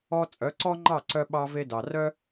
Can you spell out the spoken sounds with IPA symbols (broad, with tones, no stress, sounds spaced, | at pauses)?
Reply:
ɔ˧ t͡sʼ œ˩˥ ǀ ɔ˥ ŋ͡ǃ ɑ˥˩ ǀ œ˧ ɓ ɑ˧ v e˧ d ɑ˩ r œ˥